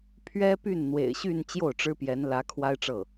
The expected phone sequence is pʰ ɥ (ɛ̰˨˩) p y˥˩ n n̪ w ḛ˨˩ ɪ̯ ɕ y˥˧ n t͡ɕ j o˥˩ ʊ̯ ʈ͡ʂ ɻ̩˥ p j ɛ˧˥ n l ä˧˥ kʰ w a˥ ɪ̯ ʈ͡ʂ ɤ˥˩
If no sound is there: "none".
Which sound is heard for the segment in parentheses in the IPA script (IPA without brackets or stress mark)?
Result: ɛ˥